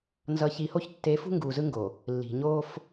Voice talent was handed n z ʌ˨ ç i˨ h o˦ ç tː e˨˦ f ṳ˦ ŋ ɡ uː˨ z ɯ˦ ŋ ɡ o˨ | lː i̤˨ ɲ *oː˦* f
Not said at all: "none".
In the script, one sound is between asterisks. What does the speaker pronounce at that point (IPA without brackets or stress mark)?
oː˦